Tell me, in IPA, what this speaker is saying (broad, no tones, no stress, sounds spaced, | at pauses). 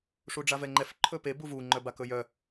ʂ u ɖ͡ʐ a v ɛ ŋ͡ǃ ɛ f ǃʰ ɵ p e b u v u ŋ͡ǃ œ b a k ɵ j œ